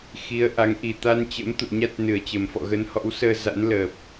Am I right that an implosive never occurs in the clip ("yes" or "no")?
yes